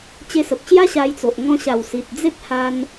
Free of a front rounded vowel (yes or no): yes